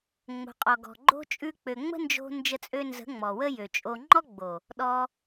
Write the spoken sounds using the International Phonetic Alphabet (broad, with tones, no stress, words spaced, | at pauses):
ŋ͡mo̤˨qʼɔ˨ɡɔ̤˨ɡ͡ǃo̤˦ t͡ʃʼʉ˧k͡pø˨ŋ͡mə̤˦nd͡ʒo̤˧ nd͡ʒə˧t͡sʼø˧nzə̤˨˦ ŋ͡mɔ˨wə˦ jø˨t͡ʃʼo˧ ŋ͡ǃɔ˦ɡ͡bo˨ | ɗɔ˧